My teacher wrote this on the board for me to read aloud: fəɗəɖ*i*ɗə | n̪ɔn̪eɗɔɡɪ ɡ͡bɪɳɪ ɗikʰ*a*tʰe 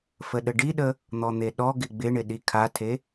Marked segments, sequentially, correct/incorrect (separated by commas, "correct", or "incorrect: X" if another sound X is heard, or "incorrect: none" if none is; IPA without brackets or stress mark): correct, correct